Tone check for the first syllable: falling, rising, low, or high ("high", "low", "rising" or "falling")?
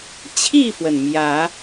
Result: falling